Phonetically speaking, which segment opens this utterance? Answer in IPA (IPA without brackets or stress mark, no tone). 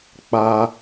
k͡p